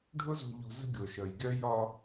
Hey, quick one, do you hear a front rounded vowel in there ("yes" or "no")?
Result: yes